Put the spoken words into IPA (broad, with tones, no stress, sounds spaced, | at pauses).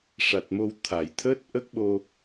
ʂ a˨˩ t̚ m o˧ w t̪ʰ a˨˩˨ j t̪ʰ əː˦˥ t̚ ʔ ə˦˥ k̚ ɓ o˧